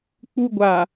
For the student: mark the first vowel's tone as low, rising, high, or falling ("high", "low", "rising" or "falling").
high